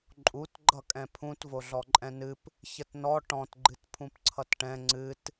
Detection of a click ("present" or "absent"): present